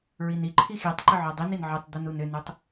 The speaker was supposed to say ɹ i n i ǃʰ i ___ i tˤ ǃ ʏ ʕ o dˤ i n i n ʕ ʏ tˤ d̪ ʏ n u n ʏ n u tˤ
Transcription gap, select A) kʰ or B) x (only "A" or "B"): B